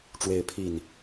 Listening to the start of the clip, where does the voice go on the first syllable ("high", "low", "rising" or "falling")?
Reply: rising